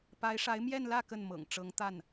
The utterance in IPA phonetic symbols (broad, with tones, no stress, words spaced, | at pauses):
pa˧˥ɪ̯ʂa˧˥ɪ̯ mjɛ˥˧nlä˥˧ kə˥˩nmɤ̰˨˩ŋ ʈ͡ʂɤ˧˥ŋt̪a˥˩n